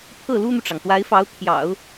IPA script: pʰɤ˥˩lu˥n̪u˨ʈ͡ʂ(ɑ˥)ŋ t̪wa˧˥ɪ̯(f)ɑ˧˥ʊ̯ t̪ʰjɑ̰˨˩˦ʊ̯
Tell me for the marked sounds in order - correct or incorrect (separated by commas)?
incorrect, correct